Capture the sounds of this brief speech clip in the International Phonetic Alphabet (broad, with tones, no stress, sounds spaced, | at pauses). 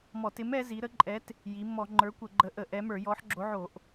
m ɔ˧˩˧ t ɪ˨˥ m ɛ˨˥ z i˨˥ ɾ ə˨˥ ǃʼ ɛ˨˥ t | j i˨˥ mː ɔ˧˩˧ ŋ͡ǃ ə˞˨˥ kʷ ə˧˩˧ ɡ͡ǃ ə˨˥ ʔ ə˧˩˧ ʔ ɛ˨˥ m ə˞˧˩˧ j ɔ˨˥ ħ ɡ͡ǁ o˨˥ ʕ o˧˩˧ ʔ